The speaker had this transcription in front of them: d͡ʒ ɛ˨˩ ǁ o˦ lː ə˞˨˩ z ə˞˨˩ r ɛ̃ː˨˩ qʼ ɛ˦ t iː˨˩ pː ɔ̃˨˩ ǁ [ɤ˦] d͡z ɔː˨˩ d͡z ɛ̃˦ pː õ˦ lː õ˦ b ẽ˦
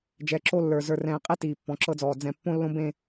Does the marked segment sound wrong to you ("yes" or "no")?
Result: no